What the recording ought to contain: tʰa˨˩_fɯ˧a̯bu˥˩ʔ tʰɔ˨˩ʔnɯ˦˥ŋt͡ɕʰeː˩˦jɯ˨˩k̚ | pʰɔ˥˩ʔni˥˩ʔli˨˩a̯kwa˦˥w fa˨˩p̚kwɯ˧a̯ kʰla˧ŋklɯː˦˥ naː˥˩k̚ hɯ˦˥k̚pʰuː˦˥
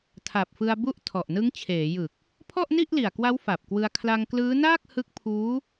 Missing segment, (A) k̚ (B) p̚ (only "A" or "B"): B